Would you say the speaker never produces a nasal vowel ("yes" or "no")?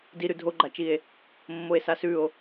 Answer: yes